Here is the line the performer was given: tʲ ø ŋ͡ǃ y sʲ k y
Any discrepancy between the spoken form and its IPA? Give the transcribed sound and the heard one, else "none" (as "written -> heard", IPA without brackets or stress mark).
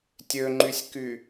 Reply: none